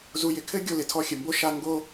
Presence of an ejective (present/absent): absent